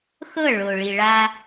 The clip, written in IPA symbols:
x ɤ˦˨ ɭ o˨ ɭ i˨ ɭ a˦

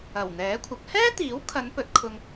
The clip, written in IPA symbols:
ɐ˨˩ w n̪ ɛː˨˥ kʷʰ ɐ˨˥ k̚ h ɛː˥ t̪ iː˨˥ w kʰ ɐ˨˧ n p ɵ˨˥ t̚ kʰ ʊ˧ ŋ

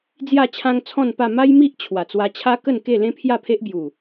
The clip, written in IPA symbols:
d͡z j a˥˧ t͡ɕʰ ã˦ ŋ t͡sʰ ɔ̃˥˧ n p a˥˧ m a˦ j m i˦ ʔ t͡ɕʰ w a˨˩ t͡s w a˧ t͡ɕʰ a˦ k ə˥˧ n k e˥˧ l ẽ˦ pʰ j a˥˧ pʰ e˦ ʔ b j u˨˩

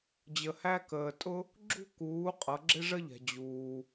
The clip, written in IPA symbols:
d͡ʑ ə˩ h æ˥ k əː˩ tʼ ʊ˥ | ɡ͡ǁ ṳ˥ k uː˩˧ qʼ ʌ˩˧ ɡ͡ǁ ɪ˥ ʐ ə˥ ʎ ɛ̤˩ d͡ʑ uː˩

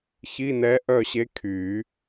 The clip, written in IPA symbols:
ç i˧˥˧ n ɛ˧˥ ʔ œ˥˨ ɕ e˧˥ kʰ y˨˩˦

